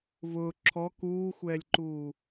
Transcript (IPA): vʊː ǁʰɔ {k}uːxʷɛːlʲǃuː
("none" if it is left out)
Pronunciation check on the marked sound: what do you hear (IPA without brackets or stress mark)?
k